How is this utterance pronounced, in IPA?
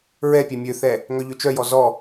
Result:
ɹɛpʲɛ mʲøθɛ | ŋœʎøt͡ʃœjɔ zɔ

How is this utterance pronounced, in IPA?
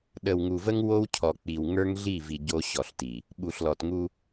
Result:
ɗə˨wŋu˨və˦ŋ wo˦wcʰɔ˨ k͡pi˨w ŋə˞˦ŋɮi˦˨vi˨ ɟo˦ɕɔ˨ɬti˨ | ɓu˨ɬlɔ˨tŋu˦

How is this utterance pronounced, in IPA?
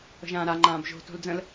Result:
ə̤ʒãːɾa ŋ͡ǃãːbʒo̤ to̤ld͡zə̃l

